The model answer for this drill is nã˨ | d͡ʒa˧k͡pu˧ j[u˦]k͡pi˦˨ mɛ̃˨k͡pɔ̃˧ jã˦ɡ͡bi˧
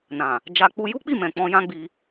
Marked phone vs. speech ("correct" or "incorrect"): correct